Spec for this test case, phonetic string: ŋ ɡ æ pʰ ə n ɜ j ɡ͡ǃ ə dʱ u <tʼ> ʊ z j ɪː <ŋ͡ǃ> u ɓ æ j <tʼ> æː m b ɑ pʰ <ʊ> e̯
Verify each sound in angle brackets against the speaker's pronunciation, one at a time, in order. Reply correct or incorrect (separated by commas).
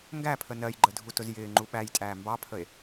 incorrect, correct, correct, incorrect